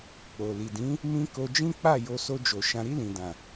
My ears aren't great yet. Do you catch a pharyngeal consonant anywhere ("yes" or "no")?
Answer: no